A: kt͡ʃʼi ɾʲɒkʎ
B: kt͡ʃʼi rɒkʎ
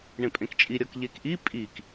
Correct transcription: A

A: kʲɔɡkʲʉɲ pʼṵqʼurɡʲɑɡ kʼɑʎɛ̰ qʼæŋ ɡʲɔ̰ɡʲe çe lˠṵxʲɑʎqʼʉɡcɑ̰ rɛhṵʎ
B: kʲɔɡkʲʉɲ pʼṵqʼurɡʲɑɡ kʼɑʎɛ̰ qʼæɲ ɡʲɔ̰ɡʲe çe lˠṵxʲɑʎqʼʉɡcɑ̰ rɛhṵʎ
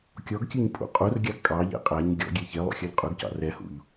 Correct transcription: B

